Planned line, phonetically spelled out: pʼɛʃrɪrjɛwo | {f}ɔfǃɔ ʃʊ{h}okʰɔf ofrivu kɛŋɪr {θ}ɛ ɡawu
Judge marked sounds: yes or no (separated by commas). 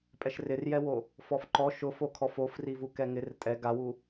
yes, no, no